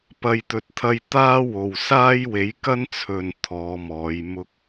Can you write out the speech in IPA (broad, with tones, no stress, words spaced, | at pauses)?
pɐ˨jt̪ɵ˨t̚t̪ʰɐ˧j t̪aː˥wo˨w saː˥jwe˨˥jkɐ˥nt͡sʰɵ˨n t̪ʰɔː˨˧mɔː˨˧j mʊ˥k̚